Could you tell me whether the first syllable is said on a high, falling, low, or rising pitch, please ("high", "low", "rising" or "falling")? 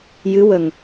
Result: rising